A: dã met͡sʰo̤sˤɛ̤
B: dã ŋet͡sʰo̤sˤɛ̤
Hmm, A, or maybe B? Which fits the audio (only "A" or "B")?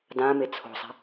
A